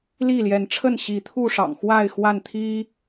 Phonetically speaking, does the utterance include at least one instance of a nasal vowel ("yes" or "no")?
no